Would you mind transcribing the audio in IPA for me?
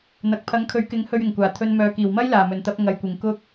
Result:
n̪ ɐ˨ k̚ pʰ ɐ˨˧ ŋ kʰ ɵ˨˧ ɥ k ɪ˨˥ ŋ h ɵ˧ ɥ ɪ˨˩ ŋ kʷ aː˨˩ t̪ʰ ɵ˧ n m œː˨ k iː˨˩ w m ɐ˥ j l aː˨˩ m ɵ˨˩ n t̪ ɐ˧ p̚ ŋ ɐ˨ j kʷ ɪ˨˩ ŋ k ʊ˧ k̚

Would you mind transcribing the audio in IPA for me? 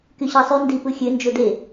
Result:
k y ɕ ɑ sˤ y n d i p ɯ xʲ ø n d͡ʒ o d e

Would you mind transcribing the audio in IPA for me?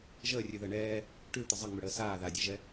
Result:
ʒ əː rʲ ʉ ð əː ɳ ɛː | ʈ ʉ t̪ ə zˤ ə ŋ͡m ʉ ɽ əː s aː ð a dʲ ɛ ʒ ɛ

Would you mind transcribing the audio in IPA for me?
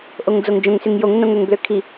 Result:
ʔ o ŋ d͡z o ŋ d͡ʒ õ ŋ s y ŋ j o ŋ n õ ŋ ɾ ø ŋ b l ø kʰ i

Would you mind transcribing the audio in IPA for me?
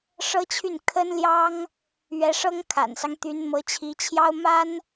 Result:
ʂ ɤ˥ t͡ɕʰ y˥˩ n kʰ ə˥ n l j ɑ˥ ŋ | ɥ ɛ˧˥ ʂ ɤ˥ ŋ kʰ a̰˨˩ n s ɑ˦ ŋ t̪ y˧˥ n m ɤ˧˥ t͡ɕʰ i˧˥ t͡ɕʰ j ɑ˥ ʊ̯ m a˥ n

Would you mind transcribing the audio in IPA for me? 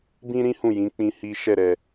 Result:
b ĩ˦ ɾ ĩ˦ h ũ˦˨ j ĩ˨˦ k͡p ĩ˧ h i˦ ʃ ɛ˦˨ ɾ ɛ˧

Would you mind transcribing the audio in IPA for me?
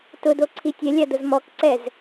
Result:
t ʊ d o ǀʰ i tʲ ɛ lʲ a d ʊ z m ɔ k ǀ ɛ z

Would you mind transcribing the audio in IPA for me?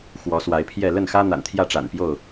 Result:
x w ɔ˨˦ s w a˨˦ ɪ̯ pʰ j ɛ˥˨ l ə˥˨ n x ä˦ n̪ a̰˨˩ n t̪ʰ j ä˥˨ ʈ͡ʂ a̰˨˩ n p j o˥˨ ʊ̯

